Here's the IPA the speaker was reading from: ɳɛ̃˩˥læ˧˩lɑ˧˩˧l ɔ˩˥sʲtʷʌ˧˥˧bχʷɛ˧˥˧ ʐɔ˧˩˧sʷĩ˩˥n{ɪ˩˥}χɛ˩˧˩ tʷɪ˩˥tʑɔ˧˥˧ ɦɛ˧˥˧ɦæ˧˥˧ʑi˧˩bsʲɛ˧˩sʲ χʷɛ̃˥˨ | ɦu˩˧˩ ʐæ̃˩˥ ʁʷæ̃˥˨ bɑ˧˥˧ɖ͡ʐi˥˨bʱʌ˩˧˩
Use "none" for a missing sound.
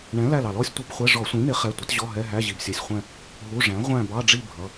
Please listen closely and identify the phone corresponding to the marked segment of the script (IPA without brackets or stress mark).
ɪ˩˥